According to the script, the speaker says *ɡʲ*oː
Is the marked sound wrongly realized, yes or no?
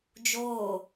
yes